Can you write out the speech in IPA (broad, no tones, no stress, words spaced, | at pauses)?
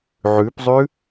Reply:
ʕʉpzˤʉ